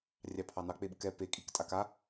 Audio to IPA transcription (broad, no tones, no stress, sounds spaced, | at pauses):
rʲ ɑ pʰ ɑ n ɑ k͡p e ɓ ɯ k ɛ p e kʼ i k tʼ a k a